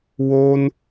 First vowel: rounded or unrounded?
rounded